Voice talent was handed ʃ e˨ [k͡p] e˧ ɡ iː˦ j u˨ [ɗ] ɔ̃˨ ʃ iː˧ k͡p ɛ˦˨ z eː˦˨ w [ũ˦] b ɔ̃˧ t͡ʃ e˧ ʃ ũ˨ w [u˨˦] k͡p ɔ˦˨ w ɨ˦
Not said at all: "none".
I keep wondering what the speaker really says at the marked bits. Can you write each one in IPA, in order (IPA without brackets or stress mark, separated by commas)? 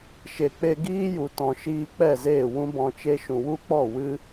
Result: k͡p, t, ũ˦, u˦